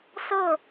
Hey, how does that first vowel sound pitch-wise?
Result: falling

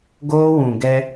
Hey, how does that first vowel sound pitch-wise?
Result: high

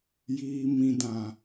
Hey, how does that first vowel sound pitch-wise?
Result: low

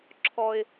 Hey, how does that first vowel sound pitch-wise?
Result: high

